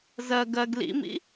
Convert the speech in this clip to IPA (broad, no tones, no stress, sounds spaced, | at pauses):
z ɜ ɡ ɜ ɡ l ḭ m ḭ